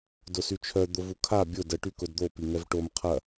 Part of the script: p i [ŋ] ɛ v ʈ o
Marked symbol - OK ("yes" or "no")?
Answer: yes